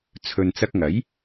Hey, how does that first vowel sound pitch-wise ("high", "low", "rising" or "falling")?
low